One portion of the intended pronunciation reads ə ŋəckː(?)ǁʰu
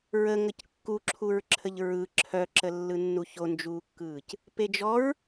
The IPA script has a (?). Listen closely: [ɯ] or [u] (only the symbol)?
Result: u